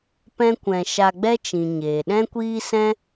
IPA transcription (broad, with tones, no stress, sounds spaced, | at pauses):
p ɛ̃˦ kʷ ɛ̃˧ ʃ a˧ ɡ͡b ɛ˦ t͡ʃ ĩ˨ ɲ eː˨ ɗ ɛ̃˦ kʷ iː˦ s ɛ̃˦